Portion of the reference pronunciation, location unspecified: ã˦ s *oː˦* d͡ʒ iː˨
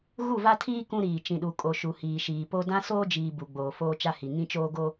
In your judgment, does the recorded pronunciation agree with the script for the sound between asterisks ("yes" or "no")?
yes